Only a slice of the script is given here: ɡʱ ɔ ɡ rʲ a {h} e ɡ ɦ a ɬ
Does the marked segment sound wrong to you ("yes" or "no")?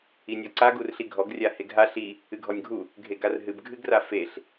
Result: no